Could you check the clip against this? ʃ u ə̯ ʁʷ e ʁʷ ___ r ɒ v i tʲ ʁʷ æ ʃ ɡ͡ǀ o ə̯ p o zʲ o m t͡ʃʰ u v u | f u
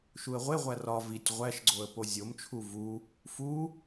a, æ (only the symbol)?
æ